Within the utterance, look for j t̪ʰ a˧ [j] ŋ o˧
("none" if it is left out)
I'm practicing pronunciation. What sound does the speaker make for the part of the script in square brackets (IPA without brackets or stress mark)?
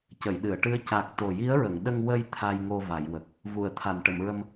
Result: j